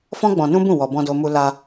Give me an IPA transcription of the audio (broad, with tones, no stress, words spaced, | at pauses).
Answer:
fɔ̃˦ɡ͡bɔ̃˧ nũ˦bũ˦˨ wɔ˧ bɔ̃˧do˧mu˧ la˧